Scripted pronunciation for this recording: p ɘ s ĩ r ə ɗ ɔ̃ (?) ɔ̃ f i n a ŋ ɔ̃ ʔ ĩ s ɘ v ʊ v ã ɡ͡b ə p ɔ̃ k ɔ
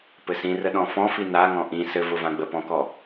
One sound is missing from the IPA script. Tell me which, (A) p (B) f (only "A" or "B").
B